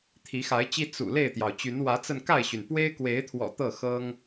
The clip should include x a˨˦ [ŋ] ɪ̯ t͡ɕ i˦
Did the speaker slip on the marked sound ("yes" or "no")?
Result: yes